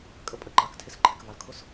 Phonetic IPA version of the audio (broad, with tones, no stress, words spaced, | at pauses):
kʼə˧pʼə˧ ǃɑ˨ktʰɪ˦sǃʰɪ˨kvɑ˨l kʰʊ˦s